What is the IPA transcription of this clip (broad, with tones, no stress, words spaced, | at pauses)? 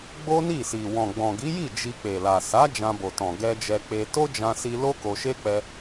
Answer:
ɡ͡bo˦ni˦˨si˨ wɔ̃˨ɡ͡bɔ̃˨ɡi˨˦ji˦˨ d͡ʒi˧k͡pe˨la˨ sa˨˦ d͡ʒã˧bo˨tɔ̃˨ ɡɛ˧d͡ʒɛ˧k͡pe˧ to˦d͡ʒã˧si˧ lo˦ko˧ʃe˦k͡pɛ˧